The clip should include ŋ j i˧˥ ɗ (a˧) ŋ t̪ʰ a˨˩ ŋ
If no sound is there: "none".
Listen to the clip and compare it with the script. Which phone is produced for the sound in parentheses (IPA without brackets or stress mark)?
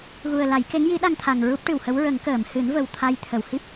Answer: a˧